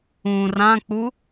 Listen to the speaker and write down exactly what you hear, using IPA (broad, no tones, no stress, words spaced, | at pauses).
ũ rãk͡pu